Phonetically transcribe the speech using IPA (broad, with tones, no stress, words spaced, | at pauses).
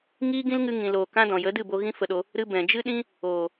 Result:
ŋiː˦ɡĩ˦lŋɨ˧ ŋĩ˨loː˨ kã˧ dɔ̃˨jə˨˦dɨ˦˨bo˧ ɣĩ˦fə˧ɗo˧ | ɾɨ˧ bɛ̃˨ d͡ʒɨ˦ɗĩ˦ | oː˨